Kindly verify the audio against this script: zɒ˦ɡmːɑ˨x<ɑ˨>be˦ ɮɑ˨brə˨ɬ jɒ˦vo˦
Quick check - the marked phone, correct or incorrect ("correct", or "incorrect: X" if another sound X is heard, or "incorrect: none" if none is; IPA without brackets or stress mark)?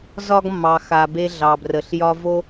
incorrect: a˨